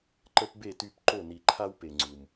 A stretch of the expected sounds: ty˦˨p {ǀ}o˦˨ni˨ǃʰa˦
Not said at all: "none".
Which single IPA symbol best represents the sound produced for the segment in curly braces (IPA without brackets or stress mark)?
ǃ